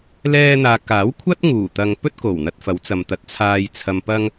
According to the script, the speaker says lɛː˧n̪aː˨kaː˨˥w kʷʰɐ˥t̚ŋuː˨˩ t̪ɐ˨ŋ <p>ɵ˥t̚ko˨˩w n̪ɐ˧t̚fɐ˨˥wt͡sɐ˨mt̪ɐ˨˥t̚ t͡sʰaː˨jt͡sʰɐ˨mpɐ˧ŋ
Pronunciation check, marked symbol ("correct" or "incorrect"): correct